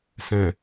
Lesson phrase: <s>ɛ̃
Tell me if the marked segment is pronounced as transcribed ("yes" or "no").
yes